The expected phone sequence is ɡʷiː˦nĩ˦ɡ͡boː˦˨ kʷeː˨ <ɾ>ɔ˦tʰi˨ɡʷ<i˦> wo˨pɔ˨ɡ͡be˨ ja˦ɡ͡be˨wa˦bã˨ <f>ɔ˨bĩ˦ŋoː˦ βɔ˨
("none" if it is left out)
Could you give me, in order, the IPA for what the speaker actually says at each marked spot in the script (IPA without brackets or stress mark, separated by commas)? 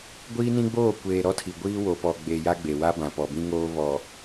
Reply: ɾ, iː˦, p